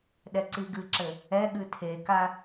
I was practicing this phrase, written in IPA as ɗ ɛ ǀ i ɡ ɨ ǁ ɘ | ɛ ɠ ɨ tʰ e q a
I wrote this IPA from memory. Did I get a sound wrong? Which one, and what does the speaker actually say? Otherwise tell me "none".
q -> k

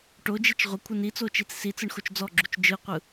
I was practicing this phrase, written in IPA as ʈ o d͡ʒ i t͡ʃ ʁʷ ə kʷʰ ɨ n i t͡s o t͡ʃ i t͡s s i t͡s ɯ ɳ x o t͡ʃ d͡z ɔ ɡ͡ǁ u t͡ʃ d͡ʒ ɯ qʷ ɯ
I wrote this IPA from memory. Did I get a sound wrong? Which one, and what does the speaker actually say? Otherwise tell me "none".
none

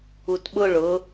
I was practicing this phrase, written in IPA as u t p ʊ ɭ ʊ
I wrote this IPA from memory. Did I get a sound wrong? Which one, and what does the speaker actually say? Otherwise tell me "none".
p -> ɓ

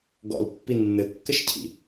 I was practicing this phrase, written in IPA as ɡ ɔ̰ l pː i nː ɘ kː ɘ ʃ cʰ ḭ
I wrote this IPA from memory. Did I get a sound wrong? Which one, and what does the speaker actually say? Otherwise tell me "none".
none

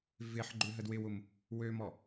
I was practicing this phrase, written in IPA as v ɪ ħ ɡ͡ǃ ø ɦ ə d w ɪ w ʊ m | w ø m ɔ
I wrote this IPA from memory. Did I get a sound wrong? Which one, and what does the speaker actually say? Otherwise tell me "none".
none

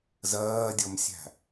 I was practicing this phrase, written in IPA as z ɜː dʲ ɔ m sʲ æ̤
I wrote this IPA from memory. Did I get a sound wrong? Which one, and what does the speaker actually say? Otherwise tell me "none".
none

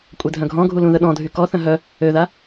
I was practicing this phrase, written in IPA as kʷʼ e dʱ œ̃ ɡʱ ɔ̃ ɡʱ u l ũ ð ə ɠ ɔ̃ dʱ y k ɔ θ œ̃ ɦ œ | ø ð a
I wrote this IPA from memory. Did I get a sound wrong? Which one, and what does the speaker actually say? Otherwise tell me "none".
ɠ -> ɗ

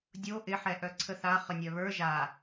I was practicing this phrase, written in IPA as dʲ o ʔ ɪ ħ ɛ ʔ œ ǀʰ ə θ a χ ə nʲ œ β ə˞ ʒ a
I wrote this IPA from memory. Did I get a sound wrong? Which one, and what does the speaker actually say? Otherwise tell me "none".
none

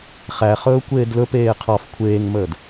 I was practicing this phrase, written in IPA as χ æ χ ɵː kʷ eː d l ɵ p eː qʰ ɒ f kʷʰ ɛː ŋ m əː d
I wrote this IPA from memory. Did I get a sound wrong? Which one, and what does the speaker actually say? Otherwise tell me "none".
ɛː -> eː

